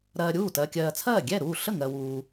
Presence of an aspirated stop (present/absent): present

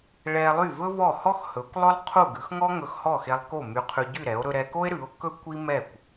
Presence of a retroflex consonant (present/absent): present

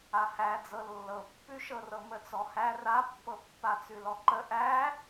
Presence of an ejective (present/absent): absent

